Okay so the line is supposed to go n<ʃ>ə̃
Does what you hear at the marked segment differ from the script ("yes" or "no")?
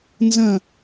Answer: yes